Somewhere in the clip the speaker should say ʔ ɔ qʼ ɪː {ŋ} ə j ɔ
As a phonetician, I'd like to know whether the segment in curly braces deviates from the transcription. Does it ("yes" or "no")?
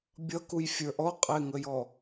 no